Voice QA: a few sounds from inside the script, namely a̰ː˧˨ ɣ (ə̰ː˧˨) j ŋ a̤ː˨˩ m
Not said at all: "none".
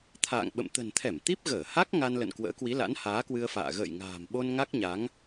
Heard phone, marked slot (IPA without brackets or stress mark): ə̰ː˧˨